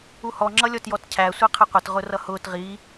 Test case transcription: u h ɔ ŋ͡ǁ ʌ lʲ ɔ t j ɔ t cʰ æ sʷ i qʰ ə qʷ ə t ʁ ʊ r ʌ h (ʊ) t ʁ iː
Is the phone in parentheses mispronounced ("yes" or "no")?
yes